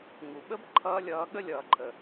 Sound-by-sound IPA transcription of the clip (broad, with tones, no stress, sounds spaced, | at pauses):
ŋ u˨ ɓ ə˦ b ǃʰ ʌː˧ lʲ ʌː˨˦ ɠ ə˦˨ lʲ ʌː˨ ǃʰ ə˨